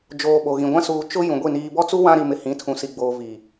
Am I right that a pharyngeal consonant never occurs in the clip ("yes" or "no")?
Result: yes